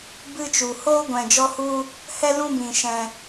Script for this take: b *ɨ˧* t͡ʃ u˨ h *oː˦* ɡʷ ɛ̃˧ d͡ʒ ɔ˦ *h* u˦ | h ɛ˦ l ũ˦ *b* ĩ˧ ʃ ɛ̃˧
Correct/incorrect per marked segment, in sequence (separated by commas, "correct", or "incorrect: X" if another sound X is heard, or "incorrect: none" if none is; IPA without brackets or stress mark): correct, correct, correct, correct